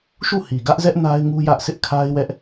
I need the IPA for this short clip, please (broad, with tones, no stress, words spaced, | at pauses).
ʃu˦˨hi˨ɡä˦ʔzɛ˦ʔ na˦ɪ̯ŋu˦ jä˦ʔsʰɪ˦ʔ kʰa˦ɪ̯wɛ˦ʔ